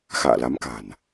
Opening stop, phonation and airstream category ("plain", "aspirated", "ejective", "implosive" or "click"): plain